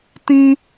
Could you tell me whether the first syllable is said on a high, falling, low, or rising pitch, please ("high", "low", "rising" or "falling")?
high